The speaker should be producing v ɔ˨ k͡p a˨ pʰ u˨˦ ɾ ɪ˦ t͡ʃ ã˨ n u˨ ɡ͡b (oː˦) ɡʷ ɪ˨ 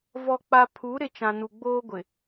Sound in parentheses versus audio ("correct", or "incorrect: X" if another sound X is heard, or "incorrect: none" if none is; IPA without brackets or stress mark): correct